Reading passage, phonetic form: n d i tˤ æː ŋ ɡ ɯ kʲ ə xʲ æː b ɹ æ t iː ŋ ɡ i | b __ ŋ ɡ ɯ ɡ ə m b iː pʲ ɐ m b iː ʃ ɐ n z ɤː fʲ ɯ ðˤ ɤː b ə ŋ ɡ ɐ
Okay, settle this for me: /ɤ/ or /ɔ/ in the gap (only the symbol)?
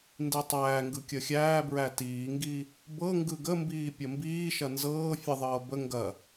ɤ